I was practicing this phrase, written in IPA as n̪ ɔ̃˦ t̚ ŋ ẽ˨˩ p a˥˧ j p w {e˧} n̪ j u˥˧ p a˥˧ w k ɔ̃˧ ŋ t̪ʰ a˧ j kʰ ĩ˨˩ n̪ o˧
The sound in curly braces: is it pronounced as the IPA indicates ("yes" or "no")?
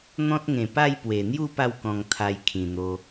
no